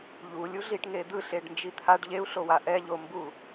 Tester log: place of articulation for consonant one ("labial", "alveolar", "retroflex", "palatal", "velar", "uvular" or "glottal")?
palatal